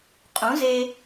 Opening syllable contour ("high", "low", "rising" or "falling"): rising